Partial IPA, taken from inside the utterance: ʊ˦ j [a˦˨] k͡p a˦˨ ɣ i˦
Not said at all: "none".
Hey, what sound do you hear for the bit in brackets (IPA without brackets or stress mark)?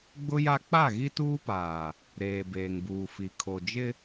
a˦